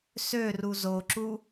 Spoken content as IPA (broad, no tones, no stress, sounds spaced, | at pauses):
s ø r u z o ǁ u